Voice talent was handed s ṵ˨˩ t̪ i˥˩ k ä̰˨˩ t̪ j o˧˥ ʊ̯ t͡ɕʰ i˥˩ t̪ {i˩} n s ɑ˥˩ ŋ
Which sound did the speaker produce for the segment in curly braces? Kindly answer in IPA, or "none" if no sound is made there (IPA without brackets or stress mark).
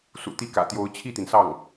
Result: i˩